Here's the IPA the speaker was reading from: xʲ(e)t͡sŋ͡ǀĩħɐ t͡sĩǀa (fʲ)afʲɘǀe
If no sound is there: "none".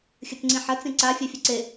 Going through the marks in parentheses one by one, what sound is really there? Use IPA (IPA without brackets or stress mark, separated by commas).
ɘ, fʲ